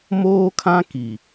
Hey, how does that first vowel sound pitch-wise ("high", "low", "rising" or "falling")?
high